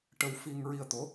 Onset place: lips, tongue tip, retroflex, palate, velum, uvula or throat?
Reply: retroflex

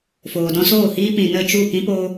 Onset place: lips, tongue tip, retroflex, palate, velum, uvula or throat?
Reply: lips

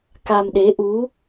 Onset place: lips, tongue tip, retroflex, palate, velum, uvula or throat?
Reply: velum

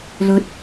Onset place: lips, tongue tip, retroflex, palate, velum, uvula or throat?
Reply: tongue tip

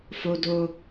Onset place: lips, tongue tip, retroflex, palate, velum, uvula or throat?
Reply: lips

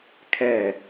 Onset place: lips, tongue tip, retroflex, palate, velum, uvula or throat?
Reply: velum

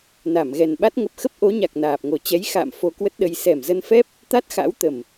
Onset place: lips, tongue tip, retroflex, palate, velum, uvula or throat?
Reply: tongue tip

